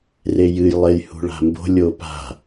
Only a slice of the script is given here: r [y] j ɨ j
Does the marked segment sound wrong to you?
yes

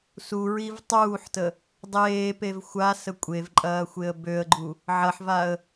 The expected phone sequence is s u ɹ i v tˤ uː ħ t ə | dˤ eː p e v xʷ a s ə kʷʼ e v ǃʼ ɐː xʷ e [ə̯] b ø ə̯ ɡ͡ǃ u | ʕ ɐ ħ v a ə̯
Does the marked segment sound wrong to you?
no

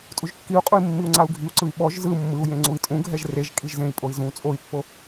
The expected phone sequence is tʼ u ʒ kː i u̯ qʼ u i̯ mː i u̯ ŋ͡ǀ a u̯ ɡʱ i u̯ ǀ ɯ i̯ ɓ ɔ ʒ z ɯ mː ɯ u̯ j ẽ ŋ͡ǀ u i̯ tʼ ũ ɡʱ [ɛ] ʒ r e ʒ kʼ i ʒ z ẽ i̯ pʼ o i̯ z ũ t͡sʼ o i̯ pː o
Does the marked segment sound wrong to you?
no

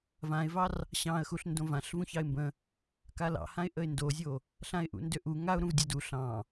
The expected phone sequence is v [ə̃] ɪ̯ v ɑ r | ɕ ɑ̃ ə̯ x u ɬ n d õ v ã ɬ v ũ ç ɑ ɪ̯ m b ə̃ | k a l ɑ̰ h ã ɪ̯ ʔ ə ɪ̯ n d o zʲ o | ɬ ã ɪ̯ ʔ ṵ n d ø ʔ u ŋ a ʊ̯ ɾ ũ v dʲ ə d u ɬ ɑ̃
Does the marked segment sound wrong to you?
yes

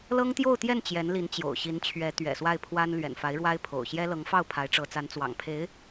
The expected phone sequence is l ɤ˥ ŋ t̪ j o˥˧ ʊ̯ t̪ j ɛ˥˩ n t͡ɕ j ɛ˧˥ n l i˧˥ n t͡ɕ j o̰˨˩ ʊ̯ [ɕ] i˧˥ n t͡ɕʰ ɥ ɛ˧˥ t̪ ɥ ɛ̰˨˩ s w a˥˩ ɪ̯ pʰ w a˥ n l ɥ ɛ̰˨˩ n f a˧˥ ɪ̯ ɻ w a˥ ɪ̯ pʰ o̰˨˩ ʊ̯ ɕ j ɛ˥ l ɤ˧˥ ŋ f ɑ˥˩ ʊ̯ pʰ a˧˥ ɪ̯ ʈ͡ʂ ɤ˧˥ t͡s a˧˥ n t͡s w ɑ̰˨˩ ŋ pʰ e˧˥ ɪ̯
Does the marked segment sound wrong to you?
no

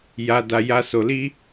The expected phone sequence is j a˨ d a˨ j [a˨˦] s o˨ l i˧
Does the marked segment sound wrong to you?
yes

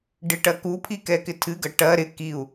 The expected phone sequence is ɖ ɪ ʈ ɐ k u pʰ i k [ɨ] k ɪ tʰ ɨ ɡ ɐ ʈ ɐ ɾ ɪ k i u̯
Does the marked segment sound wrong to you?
yes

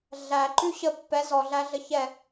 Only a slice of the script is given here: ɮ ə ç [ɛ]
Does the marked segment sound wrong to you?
no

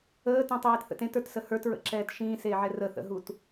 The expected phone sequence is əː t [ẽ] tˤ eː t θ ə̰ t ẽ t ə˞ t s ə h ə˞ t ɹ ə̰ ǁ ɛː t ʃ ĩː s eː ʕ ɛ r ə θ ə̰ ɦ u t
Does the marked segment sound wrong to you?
yes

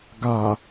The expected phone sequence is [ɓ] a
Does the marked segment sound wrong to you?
yes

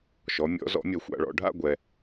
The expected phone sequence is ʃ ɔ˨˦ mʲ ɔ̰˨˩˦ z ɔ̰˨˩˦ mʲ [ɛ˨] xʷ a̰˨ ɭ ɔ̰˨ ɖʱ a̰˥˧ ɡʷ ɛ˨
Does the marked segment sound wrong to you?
no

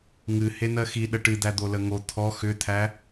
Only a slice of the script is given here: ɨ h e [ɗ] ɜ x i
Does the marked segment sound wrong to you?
yes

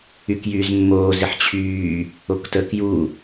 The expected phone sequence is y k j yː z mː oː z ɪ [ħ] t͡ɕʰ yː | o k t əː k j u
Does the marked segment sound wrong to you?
no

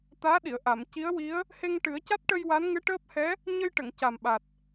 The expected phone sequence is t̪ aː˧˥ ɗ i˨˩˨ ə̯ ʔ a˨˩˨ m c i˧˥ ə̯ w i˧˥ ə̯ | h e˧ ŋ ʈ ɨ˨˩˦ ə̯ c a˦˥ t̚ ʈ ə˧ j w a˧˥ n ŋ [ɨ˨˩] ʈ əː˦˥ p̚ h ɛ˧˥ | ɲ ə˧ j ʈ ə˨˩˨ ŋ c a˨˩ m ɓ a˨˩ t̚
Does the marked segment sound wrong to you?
yes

